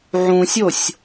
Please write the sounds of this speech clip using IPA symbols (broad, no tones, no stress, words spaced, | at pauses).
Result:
ʕũsʲosʲ